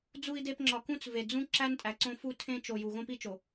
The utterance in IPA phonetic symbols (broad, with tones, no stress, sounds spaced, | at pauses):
d͡z u˨ i̯ d e˨ p ŋ͡ǁ ɒ˨ k ũ˦ t͡s v e˨ d͡z ũ˦ ǁ æ˦ n tʼ æ˨ ǀ õ˦ f u˦ tʰ ẽ˦ t͡ʃ o˨ j u˨ ɣ õ˦ p i˦ t͡ʃ o˨